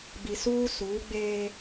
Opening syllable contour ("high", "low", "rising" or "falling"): low